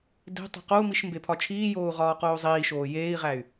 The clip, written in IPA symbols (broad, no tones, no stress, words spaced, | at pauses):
de̤ tˤe̤qou̯miʃ mbepʰɒt͡ʃʰiːjoːu̯ ʁɒːqoːzˤiːʃoː jeːi̯ʁæy̯